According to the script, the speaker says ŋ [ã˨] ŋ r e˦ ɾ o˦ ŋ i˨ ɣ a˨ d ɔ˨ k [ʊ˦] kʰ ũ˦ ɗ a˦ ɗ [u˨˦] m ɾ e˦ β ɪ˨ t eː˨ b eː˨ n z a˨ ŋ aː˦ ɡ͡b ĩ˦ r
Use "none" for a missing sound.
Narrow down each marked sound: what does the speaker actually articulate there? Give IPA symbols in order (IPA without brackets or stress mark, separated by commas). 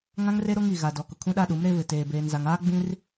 ã˦, ʊ˨, u˨˦